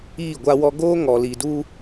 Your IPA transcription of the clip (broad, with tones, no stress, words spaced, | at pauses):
iː˦˨ɡʷaː˦wɔ˦ ɡoː˦ŋɔ˨li˨du˦